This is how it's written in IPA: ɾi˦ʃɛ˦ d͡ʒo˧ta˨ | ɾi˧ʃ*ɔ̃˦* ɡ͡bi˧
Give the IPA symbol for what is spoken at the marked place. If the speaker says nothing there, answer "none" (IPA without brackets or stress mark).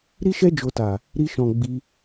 ɔ̃˨